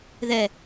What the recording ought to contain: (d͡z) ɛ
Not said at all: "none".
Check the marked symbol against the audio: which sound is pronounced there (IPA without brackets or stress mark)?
ð